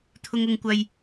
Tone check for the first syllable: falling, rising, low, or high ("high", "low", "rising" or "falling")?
high